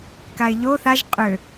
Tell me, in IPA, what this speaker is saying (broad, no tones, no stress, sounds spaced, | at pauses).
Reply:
k a ɪ̯ ʎ o θ a ʒ qʼ ø